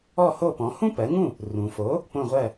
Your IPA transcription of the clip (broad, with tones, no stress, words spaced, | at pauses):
ɔ˥˩ho˥˩pɔ̃˩˥ hũ˥pɜ˩˥ŋũ˥˩ | rũ˩fo˩˥ | põ˥˩ʁʷɜ˥˩